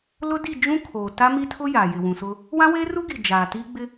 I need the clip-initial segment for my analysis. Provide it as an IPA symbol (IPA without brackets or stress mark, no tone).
l